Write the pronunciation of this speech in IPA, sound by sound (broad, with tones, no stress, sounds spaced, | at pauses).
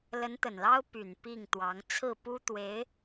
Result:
l ə˧˥ n t̪ ə˨˩ n l ɑ˥ ʊ̯ p y˨˩ n p i˥˩ ŋ t̪ w ɑ˧˥ ŋ t͡sʰ ɹ̩˥˩ p u˥ t̪ w e˧˥ ɪ̯